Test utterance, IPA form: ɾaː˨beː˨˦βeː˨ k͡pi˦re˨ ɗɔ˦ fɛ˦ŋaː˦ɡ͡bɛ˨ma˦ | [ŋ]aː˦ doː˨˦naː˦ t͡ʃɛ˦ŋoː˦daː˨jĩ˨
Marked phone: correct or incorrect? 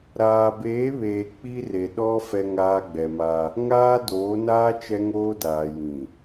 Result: correct